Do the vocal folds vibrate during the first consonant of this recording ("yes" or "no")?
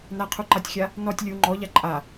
yes